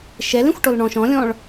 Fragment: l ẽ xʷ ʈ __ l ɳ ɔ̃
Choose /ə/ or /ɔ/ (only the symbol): ɔ